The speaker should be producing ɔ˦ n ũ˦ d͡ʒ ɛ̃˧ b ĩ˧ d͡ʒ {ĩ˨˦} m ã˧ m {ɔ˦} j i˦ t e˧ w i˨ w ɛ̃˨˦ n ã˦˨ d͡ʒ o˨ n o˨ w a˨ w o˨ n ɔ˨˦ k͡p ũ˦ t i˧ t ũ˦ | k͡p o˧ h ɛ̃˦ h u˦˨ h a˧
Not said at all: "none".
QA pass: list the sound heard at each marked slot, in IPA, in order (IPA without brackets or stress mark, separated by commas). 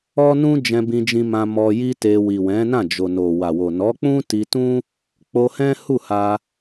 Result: ĩ˧, ɔ˧